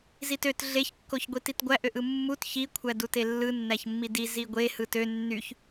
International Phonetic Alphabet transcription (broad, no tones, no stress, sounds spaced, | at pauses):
z i t ø t ɮ e ç kː o ç ɡʷ i t i t ɡʷ æ ʔ ø ʔ ɯ mː u t ç i kʷʰ æ d u t e lː ɯ nː æ ç mː i d i z i ɡʷ e h ɯ t ø nː y ç